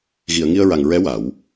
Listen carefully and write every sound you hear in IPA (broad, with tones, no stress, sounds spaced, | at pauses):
ɣ i˨˩˨ ə̯ ŋ i˧ ə̯ ɹ a˨˩ ŋ ɹ ɛ˧˥ w a˨˩˦ w